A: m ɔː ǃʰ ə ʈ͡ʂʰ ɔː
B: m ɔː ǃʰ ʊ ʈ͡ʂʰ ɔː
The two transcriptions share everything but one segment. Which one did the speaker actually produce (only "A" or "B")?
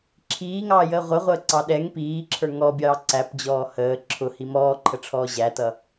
A